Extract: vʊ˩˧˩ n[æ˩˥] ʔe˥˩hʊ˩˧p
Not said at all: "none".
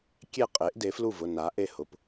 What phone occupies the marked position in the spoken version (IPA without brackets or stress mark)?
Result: a˩˥